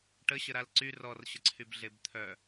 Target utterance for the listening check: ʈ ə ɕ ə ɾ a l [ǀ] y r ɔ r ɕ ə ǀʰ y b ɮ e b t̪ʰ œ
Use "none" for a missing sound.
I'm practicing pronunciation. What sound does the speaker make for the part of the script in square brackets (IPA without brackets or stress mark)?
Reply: ǀ